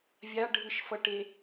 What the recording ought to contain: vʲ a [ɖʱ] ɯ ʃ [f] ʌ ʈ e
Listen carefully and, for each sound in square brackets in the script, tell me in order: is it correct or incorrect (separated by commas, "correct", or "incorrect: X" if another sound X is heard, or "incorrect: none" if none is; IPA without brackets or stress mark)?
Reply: correct, correct